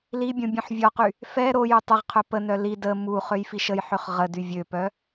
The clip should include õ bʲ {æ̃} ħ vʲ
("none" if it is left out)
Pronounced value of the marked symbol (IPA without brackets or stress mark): œ̃